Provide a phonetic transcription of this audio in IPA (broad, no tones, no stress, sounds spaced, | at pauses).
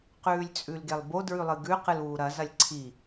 q ʉː lʲ t͡sʼ ʉ l ɡ e lˠ b o d ɹ ʉ lˠ ɨ ɡ ʉ q ɨ l uː ɾ ɐ z ɐ lʲ ǀʰ i